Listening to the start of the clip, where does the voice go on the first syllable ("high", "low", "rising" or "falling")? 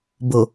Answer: low